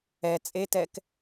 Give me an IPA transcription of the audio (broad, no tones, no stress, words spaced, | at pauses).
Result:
ɛ t͡sʼetɛk